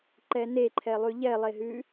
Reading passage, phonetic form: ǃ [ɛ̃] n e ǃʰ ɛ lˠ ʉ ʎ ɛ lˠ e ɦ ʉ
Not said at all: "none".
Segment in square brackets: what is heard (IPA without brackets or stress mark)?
ɛ